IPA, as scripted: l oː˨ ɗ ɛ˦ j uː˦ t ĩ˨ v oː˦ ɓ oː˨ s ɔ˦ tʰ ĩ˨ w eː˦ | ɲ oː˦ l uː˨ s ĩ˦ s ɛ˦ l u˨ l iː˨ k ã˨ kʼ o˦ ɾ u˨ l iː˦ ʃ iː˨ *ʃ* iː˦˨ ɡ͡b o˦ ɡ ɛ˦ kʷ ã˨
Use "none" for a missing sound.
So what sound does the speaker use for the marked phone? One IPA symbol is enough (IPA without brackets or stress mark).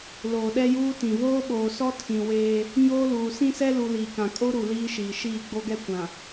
ʃ